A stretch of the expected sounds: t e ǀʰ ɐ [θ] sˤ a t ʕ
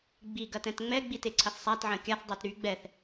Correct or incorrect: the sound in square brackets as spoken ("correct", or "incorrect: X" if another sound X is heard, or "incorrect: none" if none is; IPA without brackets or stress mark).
correct